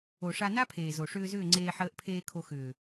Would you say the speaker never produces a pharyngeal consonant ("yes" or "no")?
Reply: no